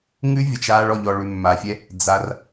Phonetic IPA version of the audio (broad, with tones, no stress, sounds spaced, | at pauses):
ŋ ʉ˦ vʲ ə˧ t͡ʃ aː˦ ɭ ɔ˧ ʎ ɔ˧ ɭ ʉ˧ mː a˧ fʲ ɛ˦ | d͡z a˧ r